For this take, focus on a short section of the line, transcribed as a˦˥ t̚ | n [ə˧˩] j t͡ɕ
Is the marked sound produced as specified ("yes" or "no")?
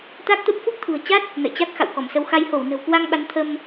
no